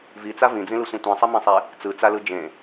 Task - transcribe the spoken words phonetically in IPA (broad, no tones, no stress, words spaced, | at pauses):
vit͡sa vĩd͡zĩlɯsʷĩ tʷĩsˤimẽsˤe | t͡sɯt͡salɯ d͡ʒẽ